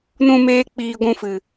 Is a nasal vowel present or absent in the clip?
present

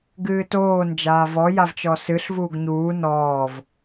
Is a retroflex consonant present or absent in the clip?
absent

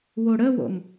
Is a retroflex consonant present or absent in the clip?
present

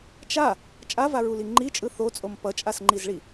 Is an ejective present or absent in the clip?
present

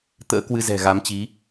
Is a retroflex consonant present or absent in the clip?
absent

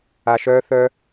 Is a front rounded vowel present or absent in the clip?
present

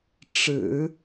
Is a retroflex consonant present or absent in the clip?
present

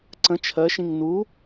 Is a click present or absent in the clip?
present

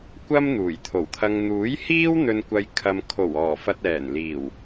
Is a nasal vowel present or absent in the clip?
absent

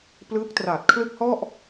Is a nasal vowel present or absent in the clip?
absent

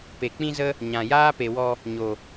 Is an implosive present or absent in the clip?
absent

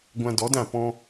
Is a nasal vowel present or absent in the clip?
present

